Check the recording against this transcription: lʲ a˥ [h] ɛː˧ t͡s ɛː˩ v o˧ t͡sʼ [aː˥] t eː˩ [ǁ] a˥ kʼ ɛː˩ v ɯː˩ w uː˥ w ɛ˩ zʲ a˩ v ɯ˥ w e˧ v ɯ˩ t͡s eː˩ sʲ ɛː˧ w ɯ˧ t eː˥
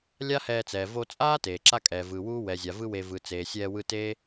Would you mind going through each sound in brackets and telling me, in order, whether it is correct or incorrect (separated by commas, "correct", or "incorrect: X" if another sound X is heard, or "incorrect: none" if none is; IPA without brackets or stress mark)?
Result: correct, correct, correct